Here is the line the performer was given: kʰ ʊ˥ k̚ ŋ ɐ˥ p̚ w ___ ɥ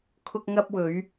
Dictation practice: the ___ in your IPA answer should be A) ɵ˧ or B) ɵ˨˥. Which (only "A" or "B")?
B